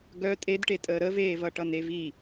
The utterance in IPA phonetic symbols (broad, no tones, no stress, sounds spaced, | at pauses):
ɡ œ tʼ e d ʈ e tʼ əː ɾ ə v eː v ʌ ʈ ʌ n e v i